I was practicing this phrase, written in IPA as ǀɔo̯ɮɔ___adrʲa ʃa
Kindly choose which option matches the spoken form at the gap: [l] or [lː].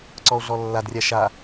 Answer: lː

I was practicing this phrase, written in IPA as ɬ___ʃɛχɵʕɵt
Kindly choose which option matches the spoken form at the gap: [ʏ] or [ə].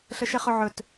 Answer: ə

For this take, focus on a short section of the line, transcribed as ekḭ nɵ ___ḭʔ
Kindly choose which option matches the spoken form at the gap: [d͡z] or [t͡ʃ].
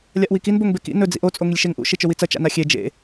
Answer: d͡z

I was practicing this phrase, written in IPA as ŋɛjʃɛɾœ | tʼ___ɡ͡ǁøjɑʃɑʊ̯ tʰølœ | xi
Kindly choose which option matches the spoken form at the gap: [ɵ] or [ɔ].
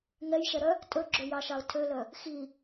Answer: ɵ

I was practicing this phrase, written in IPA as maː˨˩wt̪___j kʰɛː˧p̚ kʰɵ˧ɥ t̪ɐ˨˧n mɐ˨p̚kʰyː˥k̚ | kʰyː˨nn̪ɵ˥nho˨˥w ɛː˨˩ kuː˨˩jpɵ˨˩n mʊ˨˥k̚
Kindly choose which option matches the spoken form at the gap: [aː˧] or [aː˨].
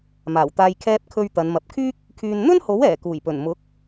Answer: aː˧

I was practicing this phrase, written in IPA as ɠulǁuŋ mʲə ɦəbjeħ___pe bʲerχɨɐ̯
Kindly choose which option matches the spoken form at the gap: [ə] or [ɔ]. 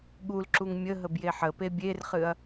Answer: ə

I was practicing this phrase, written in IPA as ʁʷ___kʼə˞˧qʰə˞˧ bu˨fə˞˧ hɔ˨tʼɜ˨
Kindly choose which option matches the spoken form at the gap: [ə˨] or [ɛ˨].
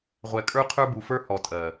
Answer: ɛ˨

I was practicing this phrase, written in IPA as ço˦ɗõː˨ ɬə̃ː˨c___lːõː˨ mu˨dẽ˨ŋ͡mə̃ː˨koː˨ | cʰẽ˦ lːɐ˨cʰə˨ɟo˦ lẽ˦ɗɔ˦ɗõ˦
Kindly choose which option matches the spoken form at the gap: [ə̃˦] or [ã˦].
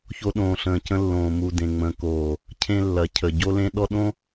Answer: ə̃˦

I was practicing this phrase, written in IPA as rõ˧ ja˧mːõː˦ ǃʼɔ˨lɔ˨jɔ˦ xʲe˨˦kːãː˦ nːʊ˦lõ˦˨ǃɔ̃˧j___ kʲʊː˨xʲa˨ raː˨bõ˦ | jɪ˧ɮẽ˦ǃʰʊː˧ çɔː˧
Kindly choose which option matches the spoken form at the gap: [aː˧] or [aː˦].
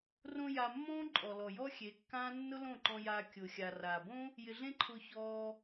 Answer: aː˧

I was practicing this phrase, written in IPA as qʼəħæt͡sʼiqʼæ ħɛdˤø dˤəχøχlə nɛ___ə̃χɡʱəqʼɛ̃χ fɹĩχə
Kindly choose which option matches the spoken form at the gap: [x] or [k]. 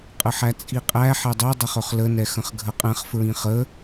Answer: x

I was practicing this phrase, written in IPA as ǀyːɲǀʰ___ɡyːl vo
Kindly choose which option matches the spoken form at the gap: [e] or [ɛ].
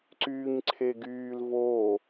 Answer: e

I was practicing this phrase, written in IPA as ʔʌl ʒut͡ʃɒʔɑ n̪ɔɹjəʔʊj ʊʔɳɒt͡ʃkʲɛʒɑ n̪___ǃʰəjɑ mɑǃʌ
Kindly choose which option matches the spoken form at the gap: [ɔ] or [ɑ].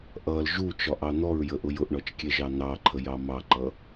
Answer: ɑ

